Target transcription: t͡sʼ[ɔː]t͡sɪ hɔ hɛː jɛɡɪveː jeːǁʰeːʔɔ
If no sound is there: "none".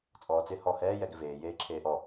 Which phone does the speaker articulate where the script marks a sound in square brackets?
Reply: ɔː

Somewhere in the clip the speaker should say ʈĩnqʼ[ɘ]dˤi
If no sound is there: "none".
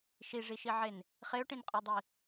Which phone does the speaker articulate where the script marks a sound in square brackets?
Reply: ø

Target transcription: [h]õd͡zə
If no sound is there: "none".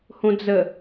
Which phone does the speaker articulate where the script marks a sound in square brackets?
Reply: h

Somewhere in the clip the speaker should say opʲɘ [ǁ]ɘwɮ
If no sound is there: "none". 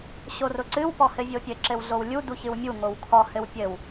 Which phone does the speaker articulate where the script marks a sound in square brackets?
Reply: ǁ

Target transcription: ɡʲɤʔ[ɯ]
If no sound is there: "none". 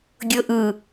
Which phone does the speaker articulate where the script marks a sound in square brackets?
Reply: ɯ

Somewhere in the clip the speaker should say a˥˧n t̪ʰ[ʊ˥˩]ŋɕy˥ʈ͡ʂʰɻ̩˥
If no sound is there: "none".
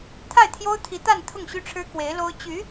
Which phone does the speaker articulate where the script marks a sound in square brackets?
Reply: ʊ˥˩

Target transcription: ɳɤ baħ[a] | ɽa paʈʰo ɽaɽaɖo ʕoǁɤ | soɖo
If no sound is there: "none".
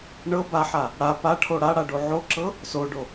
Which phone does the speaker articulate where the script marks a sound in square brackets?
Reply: a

